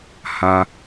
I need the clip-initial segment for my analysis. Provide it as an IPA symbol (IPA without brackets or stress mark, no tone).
h